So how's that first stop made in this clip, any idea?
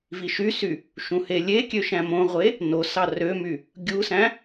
plain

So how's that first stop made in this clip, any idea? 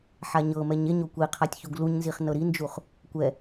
plain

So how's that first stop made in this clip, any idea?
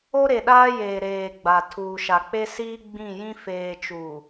implosive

